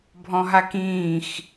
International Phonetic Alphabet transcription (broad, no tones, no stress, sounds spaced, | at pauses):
bʱ ɔ̃ ɦ a k ĩː x